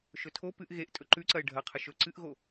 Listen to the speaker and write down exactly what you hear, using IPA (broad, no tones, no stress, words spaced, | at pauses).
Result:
ʃɵtʰo pɨʔ ɣeʔ tʼɵǃʉǀɐɪ̯ ɖʱɐqʰɨʃ ɵ ǀɨʔɣo